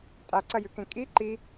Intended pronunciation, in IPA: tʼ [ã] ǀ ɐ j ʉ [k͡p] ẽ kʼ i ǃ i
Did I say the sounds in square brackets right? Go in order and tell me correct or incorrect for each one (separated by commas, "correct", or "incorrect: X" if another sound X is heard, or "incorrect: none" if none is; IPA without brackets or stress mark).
incorrect: a, incorrect: k